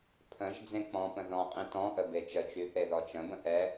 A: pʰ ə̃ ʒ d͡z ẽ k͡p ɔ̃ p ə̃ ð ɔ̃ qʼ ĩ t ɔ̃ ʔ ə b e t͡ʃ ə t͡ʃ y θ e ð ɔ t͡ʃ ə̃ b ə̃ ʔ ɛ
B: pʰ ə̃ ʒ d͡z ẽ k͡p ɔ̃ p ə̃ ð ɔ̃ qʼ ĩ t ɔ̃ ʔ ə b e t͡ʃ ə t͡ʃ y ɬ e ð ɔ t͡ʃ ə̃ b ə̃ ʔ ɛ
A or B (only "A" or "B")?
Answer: A